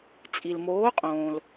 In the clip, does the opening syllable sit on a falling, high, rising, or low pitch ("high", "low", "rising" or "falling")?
low